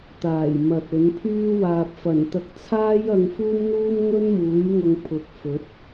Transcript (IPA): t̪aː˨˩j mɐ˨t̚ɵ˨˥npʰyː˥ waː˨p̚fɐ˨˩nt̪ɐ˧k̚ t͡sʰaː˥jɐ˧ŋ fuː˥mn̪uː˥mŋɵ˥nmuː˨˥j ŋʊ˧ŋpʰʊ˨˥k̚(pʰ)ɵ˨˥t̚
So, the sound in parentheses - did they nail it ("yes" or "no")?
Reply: no